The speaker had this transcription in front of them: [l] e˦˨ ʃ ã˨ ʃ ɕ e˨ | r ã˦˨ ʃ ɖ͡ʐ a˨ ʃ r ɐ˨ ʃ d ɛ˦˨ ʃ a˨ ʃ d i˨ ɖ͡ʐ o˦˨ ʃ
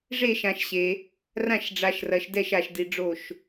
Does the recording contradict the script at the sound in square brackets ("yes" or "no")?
yes